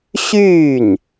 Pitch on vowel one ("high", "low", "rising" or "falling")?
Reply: falling